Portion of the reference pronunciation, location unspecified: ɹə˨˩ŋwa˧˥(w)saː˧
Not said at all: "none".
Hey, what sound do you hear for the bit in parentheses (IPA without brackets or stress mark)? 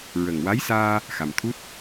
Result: j